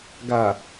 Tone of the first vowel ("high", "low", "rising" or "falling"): low